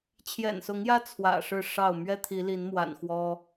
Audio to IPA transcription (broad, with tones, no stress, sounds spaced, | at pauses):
t͡ɕʰ j ɛ̰˨˩ n s ʊ˨˦ ŋ j ä˦ t͡sʰ w ä̰˨˩ ʂ ɻ̩˥˨ ʂ ɑ˥˨ ʊ̯ m ɥ ɛ˦ t̪ʰ i˨˦ l i˨˦ n m w a̰˨˩ n x w ɔ˦